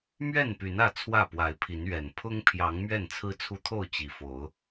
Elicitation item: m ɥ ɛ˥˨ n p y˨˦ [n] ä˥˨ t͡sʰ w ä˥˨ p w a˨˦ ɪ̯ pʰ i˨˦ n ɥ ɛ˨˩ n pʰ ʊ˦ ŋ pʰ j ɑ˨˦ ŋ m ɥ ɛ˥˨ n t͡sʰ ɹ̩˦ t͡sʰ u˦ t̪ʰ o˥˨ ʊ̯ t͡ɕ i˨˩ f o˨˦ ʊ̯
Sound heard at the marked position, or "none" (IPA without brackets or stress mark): n